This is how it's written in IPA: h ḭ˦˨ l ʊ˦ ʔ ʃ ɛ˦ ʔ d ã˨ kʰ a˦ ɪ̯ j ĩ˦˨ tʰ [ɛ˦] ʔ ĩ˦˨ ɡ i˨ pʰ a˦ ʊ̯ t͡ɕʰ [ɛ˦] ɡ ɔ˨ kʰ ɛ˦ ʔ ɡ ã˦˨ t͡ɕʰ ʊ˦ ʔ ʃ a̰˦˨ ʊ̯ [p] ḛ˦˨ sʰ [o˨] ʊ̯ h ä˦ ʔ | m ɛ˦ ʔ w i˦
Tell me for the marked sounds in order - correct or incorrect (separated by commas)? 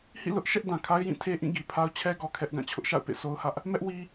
incorrect, correct, correct, incorrect